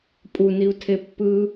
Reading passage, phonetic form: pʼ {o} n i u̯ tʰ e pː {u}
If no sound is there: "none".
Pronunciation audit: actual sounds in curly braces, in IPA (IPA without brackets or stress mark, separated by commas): u, ɯ